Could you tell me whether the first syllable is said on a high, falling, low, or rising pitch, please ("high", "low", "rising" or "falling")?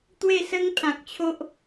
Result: falling